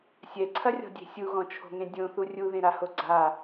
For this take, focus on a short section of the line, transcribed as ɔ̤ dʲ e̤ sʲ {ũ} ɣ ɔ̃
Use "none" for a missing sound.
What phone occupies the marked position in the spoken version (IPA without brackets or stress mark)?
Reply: u